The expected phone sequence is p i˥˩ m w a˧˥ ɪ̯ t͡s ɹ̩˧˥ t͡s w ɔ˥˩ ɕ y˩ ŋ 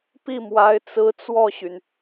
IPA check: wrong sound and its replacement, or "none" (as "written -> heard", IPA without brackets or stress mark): ŋ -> n